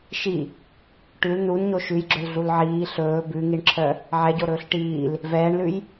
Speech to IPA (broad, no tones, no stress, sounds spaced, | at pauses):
ʃ i | ʈ ʉ l n u n ɲ o ʃ ʉ j ɡ͡ǁ ɵ l ɮ u l ʕ iː ɬ ɵː b ʉ ŋ i ɳ ǁʰ œ | ʕ ɛ ɟ o ɾ ɵː ɬ ʈ iː l | v ɛː ɳ l ʉ j